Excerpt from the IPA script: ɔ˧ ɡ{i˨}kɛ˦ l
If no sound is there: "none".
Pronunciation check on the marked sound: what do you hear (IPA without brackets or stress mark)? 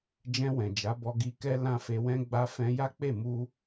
i˧